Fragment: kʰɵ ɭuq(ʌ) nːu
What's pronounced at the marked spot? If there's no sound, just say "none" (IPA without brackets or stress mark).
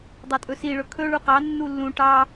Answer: ɑ